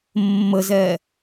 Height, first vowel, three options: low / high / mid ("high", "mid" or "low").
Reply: mid